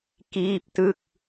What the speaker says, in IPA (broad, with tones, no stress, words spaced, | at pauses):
kiː˥˩p̚tɯ˥˩k̚